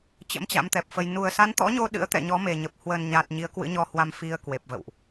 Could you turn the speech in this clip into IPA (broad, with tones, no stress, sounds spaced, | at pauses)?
t͡ɕ ə̰˧˥ m t͡ɕ a̰˧˥ m t̪ ɛ˨˩ p̚ f ə˧ j n u˨˩ ə̯ s a˨˦ n t̪ ɔ̰˧˥ ɲ o˧ ɗ ɨ̰˧˥ ə̯ t̪ ɛ̰˧˨ ɲ ɔ˨˦ m e˨˩ ɲ ə˨˩ p̚ h w ə˨˩ n ɲ a˨˩ t̚ ɲ i˨˦ ə̯ k w ɨ̰˧˥ ɲ ɔ˧ h w a˧ m f i˧ ə̯ k w e˨˩ p̚ v ə̰˧˨ w ʔ